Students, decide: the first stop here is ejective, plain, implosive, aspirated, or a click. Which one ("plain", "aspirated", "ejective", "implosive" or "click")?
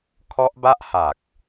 aspirated